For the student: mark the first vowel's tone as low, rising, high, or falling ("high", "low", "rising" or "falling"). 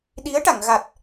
rising